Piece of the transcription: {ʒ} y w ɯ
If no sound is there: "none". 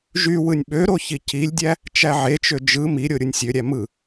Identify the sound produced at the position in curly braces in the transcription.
ʒ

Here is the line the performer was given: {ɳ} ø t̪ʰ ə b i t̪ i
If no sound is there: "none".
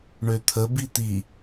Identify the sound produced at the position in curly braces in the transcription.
ɳ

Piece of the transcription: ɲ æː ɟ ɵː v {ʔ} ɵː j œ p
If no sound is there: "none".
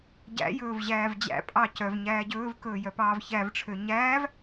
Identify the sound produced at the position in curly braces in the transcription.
k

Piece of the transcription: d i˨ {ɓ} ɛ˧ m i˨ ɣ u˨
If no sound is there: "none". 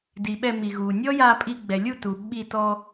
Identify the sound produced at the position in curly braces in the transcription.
ɓ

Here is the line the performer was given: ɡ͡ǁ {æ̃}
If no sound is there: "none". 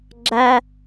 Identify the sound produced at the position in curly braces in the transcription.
æ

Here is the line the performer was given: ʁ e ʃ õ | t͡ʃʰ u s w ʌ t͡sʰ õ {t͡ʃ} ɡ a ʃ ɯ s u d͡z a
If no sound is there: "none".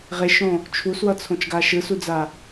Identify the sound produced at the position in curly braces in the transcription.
t͡ʃ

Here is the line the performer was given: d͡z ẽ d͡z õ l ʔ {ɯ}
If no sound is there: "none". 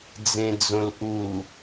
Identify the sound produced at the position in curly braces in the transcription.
u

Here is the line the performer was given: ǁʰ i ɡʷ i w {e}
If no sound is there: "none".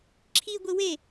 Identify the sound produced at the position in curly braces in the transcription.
e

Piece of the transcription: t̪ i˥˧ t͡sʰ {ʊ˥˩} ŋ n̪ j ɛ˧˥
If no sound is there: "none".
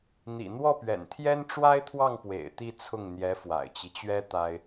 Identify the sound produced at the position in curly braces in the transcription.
ʊ˥˩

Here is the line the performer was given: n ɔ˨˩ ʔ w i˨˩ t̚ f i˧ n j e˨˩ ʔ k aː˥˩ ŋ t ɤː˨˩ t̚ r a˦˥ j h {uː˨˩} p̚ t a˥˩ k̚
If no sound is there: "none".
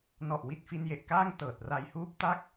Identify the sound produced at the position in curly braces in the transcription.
uː˥˩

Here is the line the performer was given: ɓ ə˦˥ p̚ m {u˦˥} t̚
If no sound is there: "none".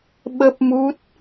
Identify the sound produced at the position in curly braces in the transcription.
u˦˥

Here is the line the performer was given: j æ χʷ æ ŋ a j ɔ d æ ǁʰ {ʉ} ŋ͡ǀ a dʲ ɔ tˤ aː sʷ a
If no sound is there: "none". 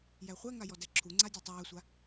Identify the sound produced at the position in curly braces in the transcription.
u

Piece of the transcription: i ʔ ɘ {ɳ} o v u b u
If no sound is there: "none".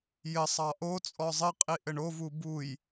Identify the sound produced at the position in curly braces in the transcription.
ɳ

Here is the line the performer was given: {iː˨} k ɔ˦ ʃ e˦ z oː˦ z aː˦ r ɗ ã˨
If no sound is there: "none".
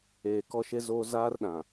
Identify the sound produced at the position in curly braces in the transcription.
eː˨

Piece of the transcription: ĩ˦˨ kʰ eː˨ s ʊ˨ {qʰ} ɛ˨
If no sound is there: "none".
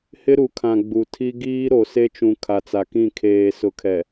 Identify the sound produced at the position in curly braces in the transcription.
kʰ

